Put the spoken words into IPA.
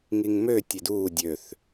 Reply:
ŋiŋmø tʲeduː dʲøθ

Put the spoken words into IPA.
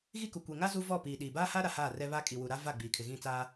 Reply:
ɣi˦ku˨ kʷe˨ŋa˦ zu˦vɔ˦˨piː˨ɗiː˨ baː˦ha˦ ɾa˨haː˦˨rɛ˦ βa˦kʼi˨wu˨ ɾa˦ va˦˨ɡ͡biː˨ kʰɪ˨ɣĩ˦˨t͡saː˦

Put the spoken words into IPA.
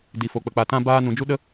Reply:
di˨fo˨k͡pə˨ k͡pa˨tã˧ baː˦ nũ˨d͡ʒu˦ɗə˦

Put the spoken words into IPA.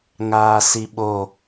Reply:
ŋaːsiɓo

